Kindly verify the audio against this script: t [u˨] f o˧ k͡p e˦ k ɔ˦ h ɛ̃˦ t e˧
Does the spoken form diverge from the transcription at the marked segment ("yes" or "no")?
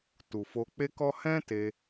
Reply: no